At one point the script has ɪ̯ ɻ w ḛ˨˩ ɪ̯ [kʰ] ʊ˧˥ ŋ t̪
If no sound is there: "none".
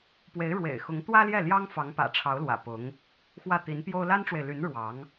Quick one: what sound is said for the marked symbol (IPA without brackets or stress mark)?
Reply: x